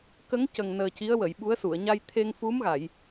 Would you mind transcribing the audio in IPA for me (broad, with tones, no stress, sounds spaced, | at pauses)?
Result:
k ə˧˥ ŋ c ə˨˩ ŋ n əː˨˩ c i˧˥ ə̯ w ə˨˩˨ j ɓ u˧˥ ə̯ s u˨˩˨ ə̯ ɲ a˧ j t̪ʰ e˧ ŋ f u˧˥ m ɣ a˨˩˨ j